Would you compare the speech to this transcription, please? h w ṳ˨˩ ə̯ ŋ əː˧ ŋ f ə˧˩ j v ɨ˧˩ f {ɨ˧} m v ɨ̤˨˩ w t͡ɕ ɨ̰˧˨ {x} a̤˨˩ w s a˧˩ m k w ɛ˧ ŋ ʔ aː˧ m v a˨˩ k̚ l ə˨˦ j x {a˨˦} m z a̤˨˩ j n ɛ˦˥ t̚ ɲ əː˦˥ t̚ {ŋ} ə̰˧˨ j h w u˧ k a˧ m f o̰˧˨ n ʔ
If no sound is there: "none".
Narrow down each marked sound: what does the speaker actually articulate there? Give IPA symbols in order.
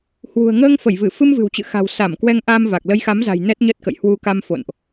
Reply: ɨ˧, x, a˨˦, k

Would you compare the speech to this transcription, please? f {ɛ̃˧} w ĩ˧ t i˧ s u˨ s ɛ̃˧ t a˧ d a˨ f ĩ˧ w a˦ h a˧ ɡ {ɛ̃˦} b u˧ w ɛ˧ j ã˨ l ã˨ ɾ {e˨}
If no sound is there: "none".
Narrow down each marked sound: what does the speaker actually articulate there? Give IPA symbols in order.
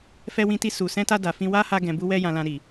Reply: ɛ˧, ɛ̃˨, i˨

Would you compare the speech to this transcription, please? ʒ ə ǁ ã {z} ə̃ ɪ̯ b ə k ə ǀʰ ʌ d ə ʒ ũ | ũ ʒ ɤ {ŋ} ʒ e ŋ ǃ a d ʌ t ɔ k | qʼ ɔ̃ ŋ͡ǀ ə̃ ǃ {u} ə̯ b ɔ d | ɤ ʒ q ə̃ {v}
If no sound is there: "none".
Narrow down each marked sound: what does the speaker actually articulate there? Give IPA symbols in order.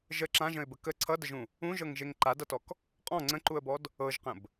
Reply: ʒ, ŋ, u, b

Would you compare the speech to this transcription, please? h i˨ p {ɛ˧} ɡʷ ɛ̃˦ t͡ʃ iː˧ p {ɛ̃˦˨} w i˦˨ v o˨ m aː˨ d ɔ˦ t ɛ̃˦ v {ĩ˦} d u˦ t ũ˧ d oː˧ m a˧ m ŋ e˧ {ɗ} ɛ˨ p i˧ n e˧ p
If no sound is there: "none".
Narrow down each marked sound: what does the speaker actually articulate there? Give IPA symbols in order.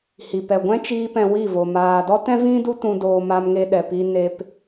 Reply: ɛ˨, ɛ̃˧, ĩ˦, ɗ

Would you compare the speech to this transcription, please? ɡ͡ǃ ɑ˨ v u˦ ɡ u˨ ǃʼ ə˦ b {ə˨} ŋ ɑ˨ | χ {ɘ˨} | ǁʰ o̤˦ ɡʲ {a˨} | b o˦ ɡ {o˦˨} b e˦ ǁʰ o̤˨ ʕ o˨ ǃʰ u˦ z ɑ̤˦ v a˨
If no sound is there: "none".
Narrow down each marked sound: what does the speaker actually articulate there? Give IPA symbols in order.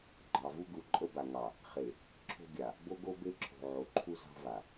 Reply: a˨, e˨, a˨, o˦

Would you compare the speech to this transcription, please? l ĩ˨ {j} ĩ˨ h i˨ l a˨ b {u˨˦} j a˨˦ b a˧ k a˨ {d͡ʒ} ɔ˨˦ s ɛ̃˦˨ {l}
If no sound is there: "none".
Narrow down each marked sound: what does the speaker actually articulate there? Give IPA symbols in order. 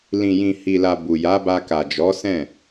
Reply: j, u˨, d͡ʒ, none

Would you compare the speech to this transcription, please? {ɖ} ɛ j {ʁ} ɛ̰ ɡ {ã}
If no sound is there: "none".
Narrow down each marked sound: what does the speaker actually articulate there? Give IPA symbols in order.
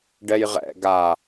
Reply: ɖ, ʁ, a

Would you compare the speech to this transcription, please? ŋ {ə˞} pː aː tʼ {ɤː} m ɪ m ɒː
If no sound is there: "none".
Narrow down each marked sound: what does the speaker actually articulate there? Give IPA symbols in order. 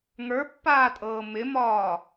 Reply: ə˞, ɤː

